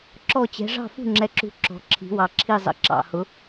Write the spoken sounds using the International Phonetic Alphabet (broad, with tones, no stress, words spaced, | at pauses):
ǁɔ˦˨t͡ɕɛ̤˨˦ ʐɑ̤˦˨fṳ˦˨ŋ͡ǁɛ˨˦ǁṳ˨˦ ǁɔ̤˨˦ǁʰi̤˨˦wɑ˨˦ ǁʰi˦˨zˤə̰˦˨ ǁɑ̰˦˨hʊ˨˦